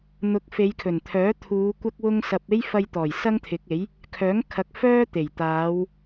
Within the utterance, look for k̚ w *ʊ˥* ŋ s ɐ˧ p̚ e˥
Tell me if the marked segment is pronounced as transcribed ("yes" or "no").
yes